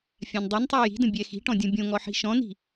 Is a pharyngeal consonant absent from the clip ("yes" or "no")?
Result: no